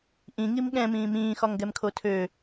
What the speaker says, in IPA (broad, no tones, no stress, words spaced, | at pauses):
ʔĩŋim ɠɛ̃mĩː mĩː xɒŋɡɛmkʰotʰø